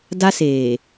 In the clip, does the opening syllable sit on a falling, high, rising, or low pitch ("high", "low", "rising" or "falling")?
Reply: high